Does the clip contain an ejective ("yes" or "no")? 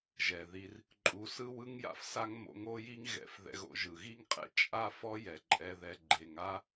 yes